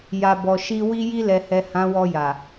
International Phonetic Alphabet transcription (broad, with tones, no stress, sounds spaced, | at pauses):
j a˨ b ɔ˨ ʃ i˧ w i˧ j i˧ l ɛ˨ h ɛ˨ h ã˨˦ w ɔ˧ j a˨